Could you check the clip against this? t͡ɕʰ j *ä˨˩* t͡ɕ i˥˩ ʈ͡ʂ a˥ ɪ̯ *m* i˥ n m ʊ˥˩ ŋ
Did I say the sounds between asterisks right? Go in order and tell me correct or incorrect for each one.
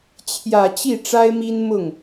correct, correct

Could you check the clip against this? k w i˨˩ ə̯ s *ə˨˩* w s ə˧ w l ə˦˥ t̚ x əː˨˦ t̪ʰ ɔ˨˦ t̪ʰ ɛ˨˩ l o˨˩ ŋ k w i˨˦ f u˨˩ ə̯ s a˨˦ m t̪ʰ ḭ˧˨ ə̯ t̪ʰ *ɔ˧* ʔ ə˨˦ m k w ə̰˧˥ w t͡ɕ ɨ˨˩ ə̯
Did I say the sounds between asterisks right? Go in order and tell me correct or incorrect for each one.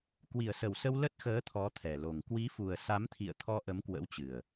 correct, correct

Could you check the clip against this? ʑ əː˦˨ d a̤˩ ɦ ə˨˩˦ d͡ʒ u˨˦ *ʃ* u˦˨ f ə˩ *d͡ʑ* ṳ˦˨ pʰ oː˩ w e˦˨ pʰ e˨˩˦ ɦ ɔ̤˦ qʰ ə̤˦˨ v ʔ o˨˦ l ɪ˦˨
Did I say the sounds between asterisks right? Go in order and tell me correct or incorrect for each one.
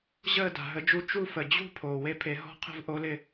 incorrect: t͡ʃ, correct

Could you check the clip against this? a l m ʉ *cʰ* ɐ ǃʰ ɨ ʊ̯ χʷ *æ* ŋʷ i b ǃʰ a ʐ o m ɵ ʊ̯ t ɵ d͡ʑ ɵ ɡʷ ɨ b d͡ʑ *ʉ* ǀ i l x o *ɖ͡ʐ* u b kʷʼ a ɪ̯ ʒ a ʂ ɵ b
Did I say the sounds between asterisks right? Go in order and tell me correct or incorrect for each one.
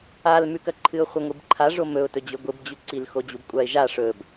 incorrect: k, incorrect: ɐ, correct, incorrect: d͡ʑ

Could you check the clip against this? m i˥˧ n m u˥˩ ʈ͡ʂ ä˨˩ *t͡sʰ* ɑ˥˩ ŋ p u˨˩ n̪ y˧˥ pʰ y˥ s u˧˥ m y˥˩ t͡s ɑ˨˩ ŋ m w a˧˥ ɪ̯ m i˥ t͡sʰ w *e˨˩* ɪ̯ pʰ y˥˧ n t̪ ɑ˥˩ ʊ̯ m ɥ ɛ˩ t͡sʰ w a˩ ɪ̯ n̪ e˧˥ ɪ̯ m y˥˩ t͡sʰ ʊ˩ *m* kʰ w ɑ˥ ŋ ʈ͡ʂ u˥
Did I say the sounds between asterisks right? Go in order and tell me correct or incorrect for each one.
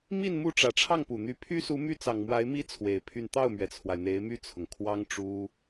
incorrect: ʈ͡ʂʰ, correct, incorrect: ŋ

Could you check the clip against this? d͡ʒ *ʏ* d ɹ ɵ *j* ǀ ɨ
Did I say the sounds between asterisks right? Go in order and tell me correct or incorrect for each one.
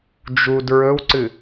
incorrect: u, incorrect: w

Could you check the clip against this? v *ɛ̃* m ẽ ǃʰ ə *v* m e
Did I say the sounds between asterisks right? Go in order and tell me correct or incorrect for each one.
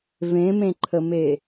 incorrect: ẽ, incorrect: none

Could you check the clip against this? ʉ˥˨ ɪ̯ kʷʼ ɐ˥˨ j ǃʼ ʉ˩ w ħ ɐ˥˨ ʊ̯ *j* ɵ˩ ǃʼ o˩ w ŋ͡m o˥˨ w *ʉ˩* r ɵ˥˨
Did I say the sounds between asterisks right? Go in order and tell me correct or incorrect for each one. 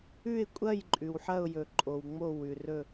correct, correct

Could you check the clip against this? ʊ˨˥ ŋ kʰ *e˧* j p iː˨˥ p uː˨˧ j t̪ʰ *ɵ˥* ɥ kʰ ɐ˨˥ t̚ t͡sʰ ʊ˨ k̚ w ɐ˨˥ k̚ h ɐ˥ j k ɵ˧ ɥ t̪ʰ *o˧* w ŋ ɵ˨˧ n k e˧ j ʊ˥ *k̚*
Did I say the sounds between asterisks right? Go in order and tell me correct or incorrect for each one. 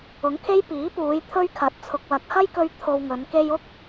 incorrect: e˥, correct, correct, correct

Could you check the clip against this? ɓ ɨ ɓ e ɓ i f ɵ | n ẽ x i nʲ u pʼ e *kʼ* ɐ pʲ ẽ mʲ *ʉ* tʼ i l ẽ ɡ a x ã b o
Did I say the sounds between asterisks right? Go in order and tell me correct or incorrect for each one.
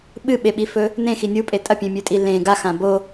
incorrect: tʼ, correct

